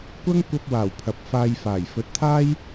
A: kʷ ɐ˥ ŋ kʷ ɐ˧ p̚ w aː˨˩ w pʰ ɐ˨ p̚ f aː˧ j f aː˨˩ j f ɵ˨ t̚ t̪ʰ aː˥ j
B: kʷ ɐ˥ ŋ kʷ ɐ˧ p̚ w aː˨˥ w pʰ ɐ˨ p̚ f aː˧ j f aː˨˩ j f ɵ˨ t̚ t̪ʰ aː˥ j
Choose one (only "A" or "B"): A